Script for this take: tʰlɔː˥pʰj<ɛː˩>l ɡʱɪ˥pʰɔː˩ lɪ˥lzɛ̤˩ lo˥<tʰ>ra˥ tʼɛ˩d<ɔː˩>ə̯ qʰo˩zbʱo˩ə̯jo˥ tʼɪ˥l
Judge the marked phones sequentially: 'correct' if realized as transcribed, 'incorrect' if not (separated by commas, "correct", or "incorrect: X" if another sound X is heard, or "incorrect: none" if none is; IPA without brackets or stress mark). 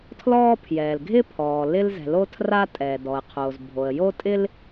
correct, correct, incorrect: ɔ˩